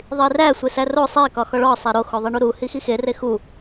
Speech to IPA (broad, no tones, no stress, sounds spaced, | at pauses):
ðˤ i r æ sʷ e s æ r o sˤ e k ɒ x ɒ ɭ ɒ sˤ e ɾ o x o ðˤ i ɳ u ɾ u h i x i x e r e x u